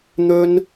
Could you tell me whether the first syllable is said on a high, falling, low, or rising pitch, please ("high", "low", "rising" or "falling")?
high